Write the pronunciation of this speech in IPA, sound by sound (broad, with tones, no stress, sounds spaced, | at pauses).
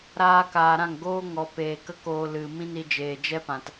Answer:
ɾ aː˧ k aː˨ ɾ ã˦˨ ŋ ɡ oː˦ ŋ ɔ˨ p eː˨ k ə˦ k oː˧ l ɨ˨ m ĩ˦ n i˧ d͡ʒ eː˨ d͡ʒ ɛ˦ p ã˨ t